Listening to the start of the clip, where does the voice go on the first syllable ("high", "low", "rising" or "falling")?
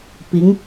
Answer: rising